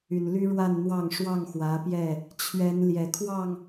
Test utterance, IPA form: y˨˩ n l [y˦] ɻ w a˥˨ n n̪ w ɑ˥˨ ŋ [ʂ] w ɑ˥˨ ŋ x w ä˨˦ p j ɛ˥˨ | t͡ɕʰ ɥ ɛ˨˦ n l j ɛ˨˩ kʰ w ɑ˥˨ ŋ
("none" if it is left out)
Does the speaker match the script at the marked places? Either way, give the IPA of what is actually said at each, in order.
y˦, ʂ

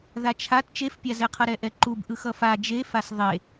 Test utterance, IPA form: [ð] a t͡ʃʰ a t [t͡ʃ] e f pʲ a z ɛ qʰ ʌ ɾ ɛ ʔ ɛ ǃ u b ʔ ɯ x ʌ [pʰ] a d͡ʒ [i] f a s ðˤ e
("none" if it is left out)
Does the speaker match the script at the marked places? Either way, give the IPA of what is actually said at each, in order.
ð, t͡ʃ, f, e

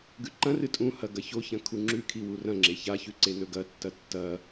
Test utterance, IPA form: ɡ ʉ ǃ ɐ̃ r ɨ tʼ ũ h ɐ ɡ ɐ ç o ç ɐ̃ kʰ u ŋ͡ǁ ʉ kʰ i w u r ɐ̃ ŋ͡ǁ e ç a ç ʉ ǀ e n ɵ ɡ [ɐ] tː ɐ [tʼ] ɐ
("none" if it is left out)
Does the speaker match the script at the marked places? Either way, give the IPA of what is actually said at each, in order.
ɐ, tː

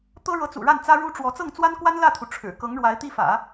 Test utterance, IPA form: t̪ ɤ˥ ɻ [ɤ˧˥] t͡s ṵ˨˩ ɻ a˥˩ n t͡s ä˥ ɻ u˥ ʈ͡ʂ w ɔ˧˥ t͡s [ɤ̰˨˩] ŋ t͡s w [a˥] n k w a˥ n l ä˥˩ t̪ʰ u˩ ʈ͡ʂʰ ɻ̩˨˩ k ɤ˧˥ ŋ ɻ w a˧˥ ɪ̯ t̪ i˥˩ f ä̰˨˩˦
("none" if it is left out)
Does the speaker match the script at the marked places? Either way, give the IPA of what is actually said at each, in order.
ɤ˧˥, ɤ˥˩, a˥

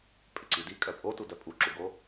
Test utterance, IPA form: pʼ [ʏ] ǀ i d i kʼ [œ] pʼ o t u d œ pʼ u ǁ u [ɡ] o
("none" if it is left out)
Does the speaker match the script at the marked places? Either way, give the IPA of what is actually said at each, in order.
ʏ, œ, ɡ

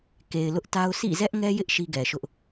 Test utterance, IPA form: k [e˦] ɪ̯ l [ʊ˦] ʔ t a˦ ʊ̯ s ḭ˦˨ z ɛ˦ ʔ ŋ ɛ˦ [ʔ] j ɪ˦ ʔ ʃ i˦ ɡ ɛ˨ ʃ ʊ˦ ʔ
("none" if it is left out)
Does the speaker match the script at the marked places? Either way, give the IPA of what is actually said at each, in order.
e˨, ʊ˦, none

